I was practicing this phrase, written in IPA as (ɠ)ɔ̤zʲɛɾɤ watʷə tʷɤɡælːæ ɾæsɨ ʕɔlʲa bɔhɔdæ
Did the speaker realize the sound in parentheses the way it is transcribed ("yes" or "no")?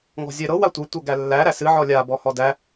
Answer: no